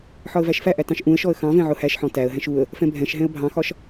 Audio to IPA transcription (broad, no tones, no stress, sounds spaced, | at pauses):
ħ ɒ ə̯ v æ ʃ f æ ʔ æ t ɑ̃ ʃ ʔ ũ ə̯ ʃ ɔ ə̯ x ɑ̃ v ɛ̃ ʕ ʊ h æ ʃ ħ ɔ̃ t æ ə̯ ɦ ɛ̃ ʃ u ə̯ | f ɛ̃ bʱ ɛ̃ ʃ ɦ ɛ̃ ə̯ bʱ ɑ̃ x ɒ ʃ